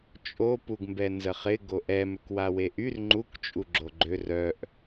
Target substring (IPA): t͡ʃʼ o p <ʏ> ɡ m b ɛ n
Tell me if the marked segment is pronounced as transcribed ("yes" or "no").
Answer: no